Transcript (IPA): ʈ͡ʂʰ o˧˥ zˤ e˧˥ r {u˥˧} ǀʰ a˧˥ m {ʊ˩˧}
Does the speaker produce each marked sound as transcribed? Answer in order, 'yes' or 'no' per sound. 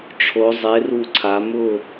yes, no

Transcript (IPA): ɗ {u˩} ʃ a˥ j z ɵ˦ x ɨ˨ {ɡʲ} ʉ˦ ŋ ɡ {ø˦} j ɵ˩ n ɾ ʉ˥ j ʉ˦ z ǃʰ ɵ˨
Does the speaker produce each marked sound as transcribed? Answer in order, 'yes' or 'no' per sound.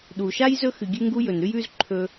yes, yes, no

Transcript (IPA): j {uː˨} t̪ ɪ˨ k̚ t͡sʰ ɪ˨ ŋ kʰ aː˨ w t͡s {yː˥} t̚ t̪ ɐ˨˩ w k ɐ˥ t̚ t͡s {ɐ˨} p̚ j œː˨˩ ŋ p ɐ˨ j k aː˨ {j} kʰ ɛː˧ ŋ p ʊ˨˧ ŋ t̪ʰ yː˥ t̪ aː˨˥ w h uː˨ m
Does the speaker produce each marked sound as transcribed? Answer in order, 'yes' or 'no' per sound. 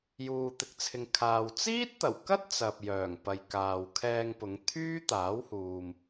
yes, no, yes, no

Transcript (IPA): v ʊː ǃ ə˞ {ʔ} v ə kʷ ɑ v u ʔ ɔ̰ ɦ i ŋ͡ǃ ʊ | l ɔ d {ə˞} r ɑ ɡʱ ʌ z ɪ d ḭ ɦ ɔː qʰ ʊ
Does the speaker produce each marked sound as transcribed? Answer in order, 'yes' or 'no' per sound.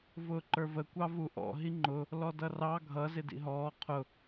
no, no

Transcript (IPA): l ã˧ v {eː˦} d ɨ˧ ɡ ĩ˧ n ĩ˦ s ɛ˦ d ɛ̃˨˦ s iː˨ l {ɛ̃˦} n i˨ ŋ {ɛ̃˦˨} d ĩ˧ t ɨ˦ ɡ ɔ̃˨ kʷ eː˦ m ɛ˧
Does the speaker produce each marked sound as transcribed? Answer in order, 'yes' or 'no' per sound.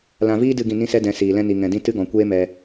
no, no, no

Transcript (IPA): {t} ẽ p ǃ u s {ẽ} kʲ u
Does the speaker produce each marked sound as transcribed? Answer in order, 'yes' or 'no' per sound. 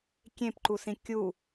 no, no

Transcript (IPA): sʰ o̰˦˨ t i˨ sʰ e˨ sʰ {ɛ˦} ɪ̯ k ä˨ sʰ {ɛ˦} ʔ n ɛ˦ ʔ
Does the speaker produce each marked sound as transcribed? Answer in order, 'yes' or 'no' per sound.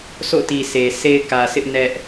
no, no

